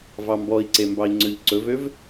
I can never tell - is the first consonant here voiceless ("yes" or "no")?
no